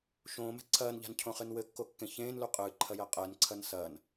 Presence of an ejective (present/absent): present